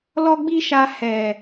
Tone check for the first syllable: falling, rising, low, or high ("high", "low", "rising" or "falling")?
high